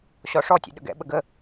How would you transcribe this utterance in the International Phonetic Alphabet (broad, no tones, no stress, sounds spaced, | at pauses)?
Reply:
ɕ ɔ ʂ ɔ tʲ ḛ ɗ ə̰ ɡ ɛ̰ ɓ ə ɡ ə